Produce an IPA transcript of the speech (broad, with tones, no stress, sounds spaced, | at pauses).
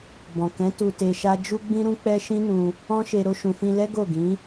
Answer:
b ɔ̃˨ k ɛ̃˨˦ t u˧ t e˧ ʃ a˦ d͡ʒ u˦ ɡ͡b ĩ˦ ɾ ũ˦ k͡p ɛ˦ ʃ ĩ˦ n ũ˧ | ɔ̃˦ ʃ e˧ ɾ o˧ ʃ ũ˨ f ĩ˧ l ɛ˦ ɡ o˦˨ ɡ ĩ˨˦